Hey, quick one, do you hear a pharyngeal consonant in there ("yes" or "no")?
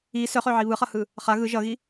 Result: yes